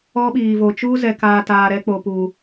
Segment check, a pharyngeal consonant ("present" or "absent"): absent